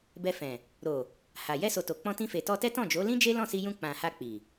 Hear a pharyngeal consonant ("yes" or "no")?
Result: no